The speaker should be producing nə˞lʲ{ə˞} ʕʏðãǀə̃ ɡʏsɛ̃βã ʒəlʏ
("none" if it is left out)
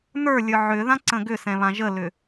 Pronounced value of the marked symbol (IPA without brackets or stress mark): ə˞